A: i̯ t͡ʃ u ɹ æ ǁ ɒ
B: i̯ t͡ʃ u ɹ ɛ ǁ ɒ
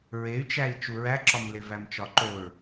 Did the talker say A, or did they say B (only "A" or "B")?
A